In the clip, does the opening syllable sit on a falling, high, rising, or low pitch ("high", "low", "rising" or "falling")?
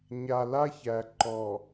low